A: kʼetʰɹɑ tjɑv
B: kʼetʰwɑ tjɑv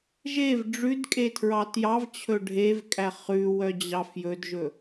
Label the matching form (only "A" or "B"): A